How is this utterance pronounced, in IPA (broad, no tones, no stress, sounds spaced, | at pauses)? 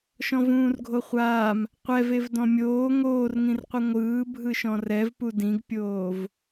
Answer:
ʃ ɔ̃ v ũː r ɡʱ o χʷ aː m | qʷ ɛ v e v d ɔ̃ mʲ oː ŋ oː r ŋ ĩ r qʷ i ŋʷ ɯː bʱ ɯ ʃ ɔ̃ r ɛ v p u d ĩ ɡ pʲ oː v